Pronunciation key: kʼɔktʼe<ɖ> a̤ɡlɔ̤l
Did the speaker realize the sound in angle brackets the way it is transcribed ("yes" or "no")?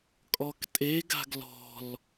no